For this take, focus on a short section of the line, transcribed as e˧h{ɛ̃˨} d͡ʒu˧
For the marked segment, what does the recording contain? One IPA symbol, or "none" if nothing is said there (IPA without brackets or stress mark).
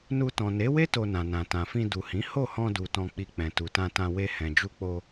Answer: ɛ̃˨